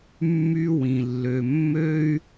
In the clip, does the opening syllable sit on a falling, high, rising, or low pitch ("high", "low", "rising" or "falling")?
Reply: high